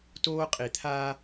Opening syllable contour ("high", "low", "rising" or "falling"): high